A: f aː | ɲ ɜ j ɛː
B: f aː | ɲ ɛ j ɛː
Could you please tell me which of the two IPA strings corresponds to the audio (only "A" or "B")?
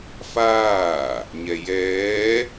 B